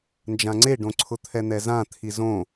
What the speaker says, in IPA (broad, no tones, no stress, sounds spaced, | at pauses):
n d͡ʒ ã ŋ͡ǀ e ɖ õ ǀʰ ʊ t̪ʰ ɛ n̪ ɛ z ã t̪ʰ i z õ